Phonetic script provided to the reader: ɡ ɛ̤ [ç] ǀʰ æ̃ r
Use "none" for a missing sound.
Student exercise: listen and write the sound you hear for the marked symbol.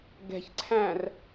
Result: ç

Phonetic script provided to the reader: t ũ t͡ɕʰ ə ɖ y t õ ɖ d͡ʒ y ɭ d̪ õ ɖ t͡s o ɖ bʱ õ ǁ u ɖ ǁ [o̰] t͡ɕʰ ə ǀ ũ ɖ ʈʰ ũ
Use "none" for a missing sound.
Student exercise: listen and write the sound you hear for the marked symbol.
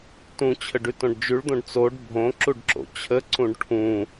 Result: o̰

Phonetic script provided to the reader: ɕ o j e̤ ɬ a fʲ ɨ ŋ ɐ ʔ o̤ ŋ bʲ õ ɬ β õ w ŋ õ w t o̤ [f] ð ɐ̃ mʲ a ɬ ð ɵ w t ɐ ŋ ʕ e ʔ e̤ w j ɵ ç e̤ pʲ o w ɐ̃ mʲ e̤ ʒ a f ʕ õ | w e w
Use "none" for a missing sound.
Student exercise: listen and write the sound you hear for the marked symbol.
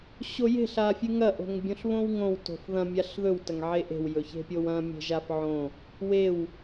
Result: f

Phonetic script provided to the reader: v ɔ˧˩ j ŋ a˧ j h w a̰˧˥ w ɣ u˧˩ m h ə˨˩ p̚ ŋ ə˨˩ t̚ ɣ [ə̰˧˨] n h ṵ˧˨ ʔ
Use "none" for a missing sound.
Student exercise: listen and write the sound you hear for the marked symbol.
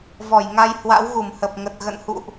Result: ə̰˧˨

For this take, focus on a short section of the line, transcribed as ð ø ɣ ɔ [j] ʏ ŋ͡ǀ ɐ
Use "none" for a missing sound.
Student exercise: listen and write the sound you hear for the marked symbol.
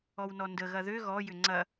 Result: j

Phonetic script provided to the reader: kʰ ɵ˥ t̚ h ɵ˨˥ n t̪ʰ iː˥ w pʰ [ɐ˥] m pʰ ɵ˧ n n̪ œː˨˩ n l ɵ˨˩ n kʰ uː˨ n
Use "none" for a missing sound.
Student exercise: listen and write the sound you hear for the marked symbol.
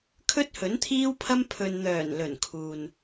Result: ɐ˥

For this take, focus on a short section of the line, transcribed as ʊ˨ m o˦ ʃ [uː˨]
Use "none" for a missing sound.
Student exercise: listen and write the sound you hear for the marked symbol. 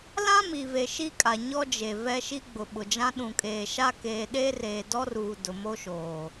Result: oː˨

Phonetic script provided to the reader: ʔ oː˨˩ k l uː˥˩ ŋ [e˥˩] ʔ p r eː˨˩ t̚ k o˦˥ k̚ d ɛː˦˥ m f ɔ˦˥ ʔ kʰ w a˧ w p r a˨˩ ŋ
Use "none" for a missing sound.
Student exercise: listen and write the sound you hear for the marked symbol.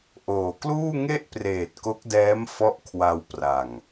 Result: e˥˩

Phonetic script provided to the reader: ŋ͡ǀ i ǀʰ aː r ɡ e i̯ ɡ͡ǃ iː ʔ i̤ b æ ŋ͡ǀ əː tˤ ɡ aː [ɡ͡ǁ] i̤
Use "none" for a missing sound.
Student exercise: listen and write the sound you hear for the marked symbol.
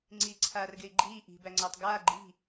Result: ɡ͡ǃ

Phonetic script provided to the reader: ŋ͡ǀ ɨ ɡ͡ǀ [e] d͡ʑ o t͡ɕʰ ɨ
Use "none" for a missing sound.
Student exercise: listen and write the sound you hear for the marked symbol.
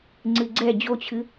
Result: ɛ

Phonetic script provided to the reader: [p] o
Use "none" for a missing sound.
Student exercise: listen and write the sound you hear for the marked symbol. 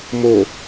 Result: m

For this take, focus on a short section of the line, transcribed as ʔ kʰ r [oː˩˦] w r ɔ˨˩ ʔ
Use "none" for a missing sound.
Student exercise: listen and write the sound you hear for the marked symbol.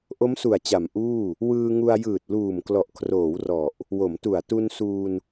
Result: oː˩˦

